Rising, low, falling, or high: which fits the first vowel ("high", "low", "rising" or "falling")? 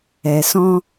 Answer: low